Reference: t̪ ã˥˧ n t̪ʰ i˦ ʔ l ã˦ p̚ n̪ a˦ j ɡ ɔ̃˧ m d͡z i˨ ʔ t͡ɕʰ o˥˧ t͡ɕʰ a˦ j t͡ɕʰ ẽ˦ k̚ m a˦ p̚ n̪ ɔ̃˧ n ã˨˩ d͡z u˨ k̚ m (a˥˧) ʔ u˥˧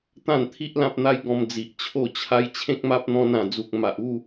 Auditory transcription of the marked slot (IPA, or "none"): a˨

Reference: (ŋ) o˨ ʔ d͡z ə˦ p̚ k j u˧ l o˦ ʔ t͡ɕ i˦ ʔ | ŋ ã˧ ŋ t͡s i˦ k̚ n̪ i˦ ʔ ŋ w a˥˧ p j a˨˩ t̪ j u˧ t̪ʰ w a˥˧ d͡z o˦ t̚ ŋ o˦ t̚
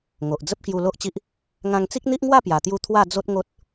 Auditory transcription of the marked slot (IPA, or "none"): ŋ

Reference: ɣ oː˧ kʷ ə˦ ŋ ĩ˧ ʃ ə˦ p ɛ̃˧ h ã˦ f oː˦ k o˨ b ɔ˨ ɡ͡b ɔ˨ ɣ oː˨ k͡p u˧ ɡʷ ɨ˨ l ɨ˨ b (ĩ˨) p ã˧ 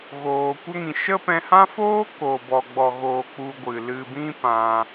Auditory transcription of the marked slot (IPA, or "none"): ĩ˧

